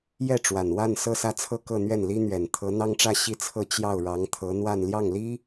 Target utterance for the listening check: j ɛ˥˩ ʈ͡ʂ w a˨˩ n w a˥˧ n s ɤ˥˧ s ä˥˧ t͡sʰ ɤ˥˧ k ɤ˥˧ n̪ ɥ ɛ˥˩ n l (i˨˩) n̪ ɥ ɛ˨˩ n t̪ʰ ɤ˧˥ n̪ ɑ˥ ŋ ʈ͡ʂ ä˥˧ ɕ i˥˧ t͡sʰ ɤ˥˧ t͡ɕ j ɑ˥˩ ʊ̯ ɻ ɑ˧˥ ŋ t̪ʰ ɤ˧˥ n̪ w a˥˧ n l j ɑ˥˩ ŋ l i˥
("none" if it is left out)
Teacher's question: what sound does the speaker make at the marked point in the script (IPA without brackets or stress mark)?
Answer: i˥